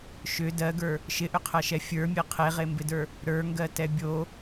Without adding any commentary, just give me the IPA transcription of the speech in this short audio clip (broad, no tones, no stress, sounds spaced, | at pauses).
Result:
ʃ ʏ d ɜ ɡ ə˞ | ʃ ɪ ʔ ʏ qʰ ɜ ʃ ɛ fʲ ə˞ mʲ e qʰ e ʁ e m b ɪ d ə˞ | ɾ ə˞ ŋ ɡ ɜ t ɛ bʲ o